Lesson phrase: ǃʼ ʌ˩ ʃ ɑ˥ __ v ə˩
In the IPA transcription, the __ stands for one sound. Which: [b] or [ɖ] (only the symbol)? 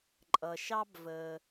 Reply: b